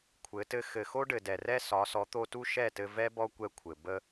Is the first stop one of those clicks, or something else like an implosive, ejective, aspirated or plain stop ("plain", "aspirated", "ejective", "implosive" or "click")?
aspirated